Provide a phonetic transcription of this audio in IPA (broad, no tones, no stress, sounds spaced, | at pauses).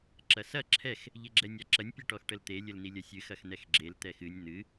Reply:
ǁ ɐ s ɐ ǁʰ ɛ x | ʎ e ɡ͡ǁ ɛ nʲ a ǁ ɐ nʲ pʲ ɛ ʈ ɔ x ʈ ə l t̪ e lʲ ə l n̪ i lʲ ɐ sʲ ɨ x ɐ x n̪ ɛ x ɡ͡ǁ e l t̪ ɛ x ɨ nʲ n̪ ɨ